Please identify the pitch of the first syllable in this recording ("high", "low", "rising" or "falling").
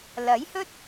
rising